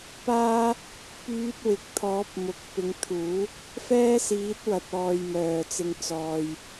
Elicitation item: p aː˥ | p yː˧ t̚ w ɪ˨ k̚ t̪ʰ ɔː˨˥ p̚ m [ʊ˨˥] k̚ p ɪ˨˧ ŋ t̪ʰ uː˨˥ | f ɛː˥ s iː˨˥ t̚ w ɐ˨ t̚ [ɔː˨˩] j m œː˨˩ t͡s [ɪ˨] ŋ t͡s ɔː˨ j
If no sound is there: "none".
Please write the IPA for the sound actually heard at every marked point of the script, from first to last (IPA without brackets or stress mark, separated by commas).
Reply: ʊ˨˥, ɔː˨, ɪ˨